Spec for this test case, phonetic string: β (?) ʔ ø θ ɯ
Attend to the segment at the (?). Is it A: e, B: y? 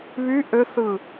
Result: B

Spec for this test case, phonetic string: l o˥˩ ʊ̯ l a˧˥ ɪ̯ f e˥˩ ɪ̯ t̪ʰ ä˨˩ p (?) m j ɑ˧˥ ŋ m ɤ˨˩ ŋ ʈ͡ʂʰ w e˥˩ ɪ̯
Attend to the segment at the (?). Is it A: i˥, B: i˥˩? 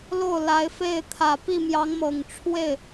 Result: B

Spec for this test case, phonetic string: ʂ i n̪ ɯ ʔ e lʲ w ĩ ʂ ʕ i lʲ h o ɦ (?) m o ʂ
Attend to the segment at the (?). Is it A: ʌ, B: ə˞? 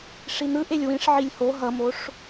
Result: A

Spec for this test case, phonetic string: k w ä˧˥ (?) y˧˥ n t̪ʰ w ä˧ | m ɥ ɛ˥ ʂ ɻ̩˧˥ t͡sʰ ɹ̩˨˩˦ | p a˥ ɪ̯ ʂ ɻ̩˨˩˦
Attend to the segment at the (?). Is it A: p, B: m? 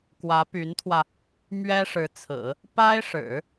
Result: A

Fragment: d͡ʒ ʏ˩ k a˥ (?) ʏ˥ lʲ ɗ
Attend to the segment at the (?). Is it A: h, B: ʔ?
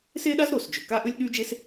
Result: B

